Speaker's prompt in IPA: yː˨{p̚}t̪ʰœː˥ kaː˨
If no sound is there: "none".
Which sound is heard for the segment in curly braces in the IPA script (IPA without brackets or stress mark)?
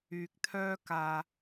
k̚